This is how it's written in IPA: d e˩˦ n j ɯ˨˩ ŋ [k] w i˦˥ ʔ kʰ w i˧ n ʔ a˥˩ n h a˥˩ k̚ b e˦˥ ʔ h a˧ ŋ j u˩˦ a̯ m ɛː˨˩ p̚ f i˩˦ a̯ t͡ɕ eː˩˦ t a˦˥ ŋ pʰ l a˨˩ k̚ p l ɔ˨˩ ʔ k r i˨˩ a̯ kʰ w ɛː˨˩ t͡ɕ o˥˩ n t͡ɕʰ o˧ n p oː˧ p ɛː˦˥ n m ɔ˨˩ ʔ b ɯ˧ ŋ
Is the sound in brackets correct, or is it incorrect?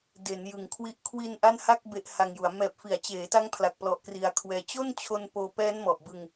incorrect